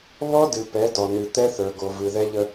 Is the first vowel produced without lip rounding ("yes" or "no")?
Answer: no